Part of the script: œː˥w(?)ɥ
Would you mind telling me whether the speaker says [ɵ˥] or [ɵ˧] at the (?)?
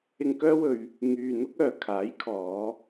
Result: ɵ˧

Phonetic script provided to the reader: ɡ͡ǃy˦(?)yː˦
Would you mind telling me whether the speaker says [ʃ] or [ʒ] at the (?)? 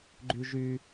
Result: ʒ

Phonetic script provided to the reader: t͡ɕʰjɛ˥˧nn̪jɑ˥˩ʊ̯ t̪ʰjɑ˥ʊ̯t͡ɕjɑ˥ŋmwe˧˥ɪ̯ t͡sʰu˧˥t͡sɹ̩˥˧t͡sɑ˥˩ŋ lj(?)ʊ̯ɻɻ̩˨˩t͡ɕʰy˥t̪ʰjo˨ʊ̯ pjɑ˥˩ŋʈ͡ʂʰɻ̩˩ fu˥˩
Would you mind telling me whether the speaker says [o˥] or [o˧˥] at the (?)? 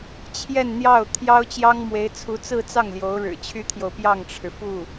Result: o˧˥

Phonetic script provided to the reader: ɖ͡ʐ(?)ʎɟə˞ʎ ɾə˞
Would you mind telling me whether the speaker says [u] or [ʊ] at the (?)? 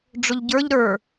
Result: ʊ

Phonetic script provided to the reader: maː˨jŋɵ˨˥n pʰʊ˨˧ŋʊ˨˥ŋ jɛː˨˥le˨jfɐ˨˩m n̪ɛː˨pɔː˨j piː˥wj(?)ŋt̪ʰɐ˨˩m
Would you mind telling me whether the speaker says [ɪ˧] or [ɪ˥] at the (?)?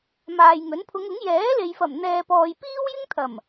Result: ɪ˥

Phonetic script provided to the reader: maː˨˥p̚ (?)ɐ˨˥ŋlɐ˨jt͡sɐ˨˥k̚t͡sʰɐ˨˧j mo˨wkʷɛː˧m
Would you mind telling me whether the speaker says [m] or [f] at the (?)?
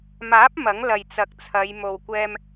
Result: m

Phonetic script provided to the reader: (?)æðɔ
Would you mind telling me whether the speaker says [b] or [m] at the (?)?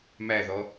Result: m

